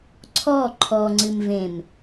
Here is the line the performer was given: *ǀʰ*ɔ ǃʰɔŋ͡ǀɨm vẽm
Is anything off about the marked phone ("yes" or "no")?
no